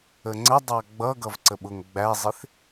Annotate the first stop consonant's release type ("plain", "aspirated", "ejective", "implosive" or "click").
click